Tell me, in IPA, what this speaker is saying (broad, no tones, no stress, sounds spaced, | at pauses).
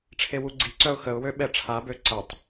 ʈ͡ʂʰ e w u ɡ͡ǀ i ǀ œ ʊ̯ x ə ʊ̯ w ø ɓ ɛ ʈ͡ʂʰ a b ø ǀ ə tˤ